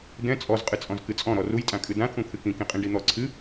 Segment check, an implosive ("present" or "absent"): absent